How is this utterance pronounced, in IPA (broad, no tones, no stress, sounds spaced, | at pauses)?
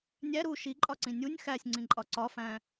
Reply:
nʲ æ ɾ u ʃ i ǃʼ ɒ ǀ ĩ nʲ u nʲ x æ sʲ ŋ͡ǀ ĩ ǃʼ ɒ ǀ ɒ f æ̃